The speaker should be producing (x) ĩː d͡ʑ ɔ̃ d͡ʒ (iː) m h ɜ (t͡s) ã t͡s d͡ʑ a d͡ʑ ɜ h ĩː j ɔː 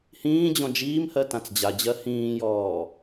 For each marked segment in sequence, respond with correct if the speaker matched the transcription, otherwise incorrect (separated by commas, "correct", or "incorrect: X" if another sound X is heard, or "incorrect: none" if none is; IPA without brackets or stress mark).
incorrect: h, correct, incorrect: t